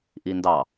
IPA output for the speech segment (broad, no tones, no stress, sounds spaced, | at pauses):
ʔ i n d ɑ